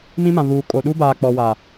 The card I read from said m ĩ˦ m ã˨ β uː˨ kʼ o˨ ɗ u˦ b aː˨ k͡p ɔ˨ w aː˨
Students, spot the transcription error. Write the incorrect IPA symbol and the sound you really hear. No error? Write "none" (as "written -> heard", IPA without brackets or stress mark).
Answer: none